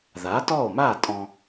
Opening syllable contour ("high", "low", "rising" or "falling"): rising